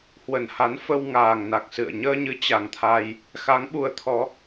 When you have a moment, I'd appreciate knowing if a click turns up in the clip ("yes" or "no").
no